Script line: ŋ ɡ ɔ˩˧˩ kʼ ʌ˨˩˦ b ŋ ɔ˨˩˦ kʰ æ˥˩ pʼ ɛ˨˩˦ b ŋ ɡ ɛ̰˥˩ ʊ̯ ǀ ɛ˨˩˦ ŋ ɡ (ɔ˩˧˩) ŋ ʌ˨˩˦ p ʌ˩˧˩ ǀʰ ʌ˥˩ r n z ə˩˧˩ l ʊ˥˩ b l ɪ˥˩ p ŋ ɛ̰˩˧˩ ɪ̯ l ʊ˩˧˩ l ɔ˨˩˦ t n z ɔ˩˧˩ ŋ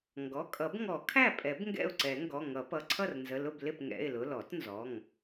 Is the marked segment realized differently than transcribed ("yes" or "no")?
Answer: no